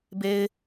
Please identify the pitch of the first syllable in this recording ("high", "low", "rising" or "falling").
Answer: low